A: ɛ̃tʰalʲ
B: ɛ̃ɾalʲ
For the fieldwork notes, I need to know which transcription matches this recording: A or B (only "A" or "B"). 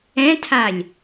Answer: A